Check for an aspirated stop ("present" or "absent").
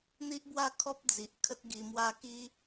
present